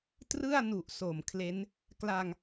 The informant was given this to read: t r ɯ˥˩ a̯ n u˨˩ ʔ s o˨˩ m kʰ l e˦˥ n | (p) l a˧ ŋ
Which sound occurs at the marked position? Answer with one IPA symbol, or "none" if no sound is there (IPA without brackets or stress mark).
k